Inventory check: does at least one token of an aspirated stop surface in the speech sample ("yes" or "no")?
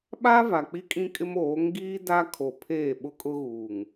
yes